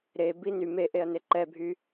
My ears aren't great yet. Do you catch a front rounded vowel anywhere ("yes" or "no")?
yes